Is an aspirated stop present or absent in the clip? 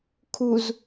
present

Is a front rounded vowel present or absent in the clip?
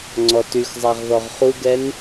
present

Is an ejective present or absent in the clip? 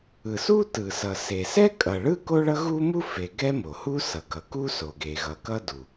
present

